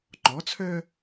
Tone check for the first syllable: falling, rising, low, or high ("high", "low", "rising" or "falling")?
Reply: rising